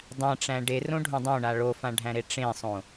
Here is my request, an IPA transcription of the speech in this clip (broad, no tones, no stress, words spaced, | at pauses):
dˤæ̃ʈ͡ʂæ̃ ɖerõɖʱõ dˤõɳa ɭofãɖʱæ̃ɾe ʈ͡ʂẽsˤõ